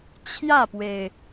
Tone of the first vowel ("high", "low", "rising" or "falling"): falling